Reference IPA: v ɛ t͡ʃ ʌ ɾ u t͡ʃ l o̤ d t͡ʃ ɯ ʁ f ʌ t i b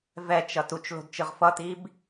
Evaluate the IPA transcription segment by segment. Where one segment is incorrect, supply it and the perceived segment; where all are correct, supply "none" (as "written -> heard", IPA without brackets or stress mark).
ɾ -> t